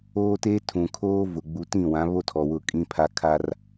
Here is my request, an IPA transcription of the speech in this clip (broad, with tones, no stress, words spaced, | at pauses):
oː˦teː˦ tʰũ˨kʰoː˦ vʊ˨ ɡ͡bu˨ tĩ˦˨wã˨˦βo˦ tʰɔ˨wʊ˦˨kʼĩ˦pʰa˦ kʰa˦r